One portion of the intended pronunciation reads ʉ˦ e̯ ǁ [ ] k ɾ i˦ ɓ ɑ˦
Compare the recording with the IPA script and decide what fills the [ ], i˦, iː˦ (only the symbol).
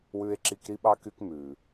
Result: i˦